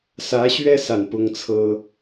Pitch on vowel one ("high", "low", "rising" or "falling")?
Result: rising